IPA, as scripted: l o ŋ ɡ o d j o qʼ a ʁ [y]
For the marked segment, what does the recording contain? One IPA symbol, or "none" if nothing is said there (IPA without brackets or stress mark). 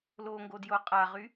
y